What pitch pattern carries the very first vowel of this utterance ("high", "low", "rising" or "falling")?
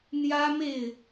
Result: high